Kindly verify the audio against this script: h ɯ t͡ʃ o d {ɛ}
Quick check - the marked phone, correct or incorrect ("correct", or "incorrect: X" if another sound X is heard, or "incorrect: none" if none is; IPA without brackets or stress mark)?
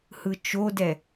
correct